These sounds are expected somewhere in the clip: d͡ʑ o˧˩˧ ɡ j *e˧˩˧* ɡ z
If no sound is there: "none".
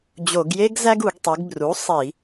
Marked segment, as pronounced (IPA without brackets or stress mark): e˥